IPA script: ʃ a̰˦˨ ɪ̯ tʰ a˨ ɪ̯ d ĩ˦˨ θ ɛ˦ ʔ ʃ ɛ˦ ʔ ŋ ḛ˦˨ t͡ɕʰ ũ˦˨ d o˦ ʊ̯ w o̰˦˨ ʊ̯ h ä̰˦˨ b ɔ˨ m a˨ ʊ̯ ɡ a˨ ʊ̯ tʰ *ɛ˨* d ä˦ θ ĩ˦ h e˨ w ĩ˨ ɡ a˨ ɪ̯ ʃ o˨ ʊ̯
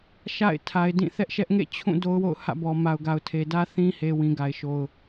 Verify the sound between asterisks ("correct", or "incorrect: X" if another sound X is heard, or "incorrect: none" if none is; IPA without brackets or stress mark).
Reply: incorrect: e˨